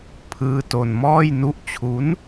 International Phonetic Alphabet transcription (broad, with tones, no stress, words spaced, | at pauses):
pʰɯː˦˥ to˧nmɔː˥˩jnu˥˩ʔ t͡ɕʰu˦˥n